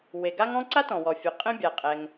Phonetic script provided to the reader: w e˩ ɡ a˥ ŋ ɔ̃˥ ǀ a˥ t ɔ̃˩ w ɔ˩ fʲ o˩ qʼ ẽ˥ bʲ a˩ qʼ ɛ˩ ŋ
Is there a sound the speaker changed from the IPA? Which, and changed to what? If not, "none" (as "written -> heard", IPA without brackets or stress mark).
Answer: none